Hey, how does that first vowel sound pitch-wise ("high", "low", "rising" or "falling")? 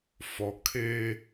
low